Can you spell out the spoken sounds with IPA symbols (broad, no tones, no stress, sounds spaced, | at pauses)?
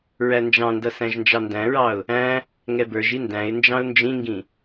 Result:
ɹ æ n d͡ʒ ɑ̃ n d ʌ s æ̃ ʒ n d͡ʒ ɑ n d æ̃ ɹ ɑ ʊ̯ | æ̃ | ŋ ɛ b ə˞ ʒ i n d æ̃ ɪ̯ n d͡ʒ ɑ̃ ʊ̯ n d͡ʒ ĩ ŋ ɡ ĩ